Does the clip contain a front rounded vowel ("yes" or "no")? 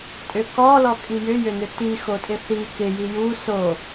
yes